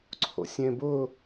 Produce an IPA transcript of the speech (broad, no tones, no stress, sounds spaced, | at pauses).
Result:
ǀʰ o̰ sʲ ẽ b ʊ